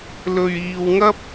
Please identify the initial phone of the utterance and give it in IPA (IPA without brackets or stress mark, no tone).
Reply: l